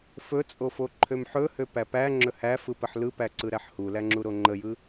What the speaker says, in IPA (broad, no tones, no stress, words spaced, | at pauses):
fɵt͡sʼo foǃʰømħɵhø pæpæŋ͡ǁɵ hæf ɯpəħlɯpæ ǀɯɾæħhulæ ŋ͡ǁuɾoŋ͡ǃəjɯ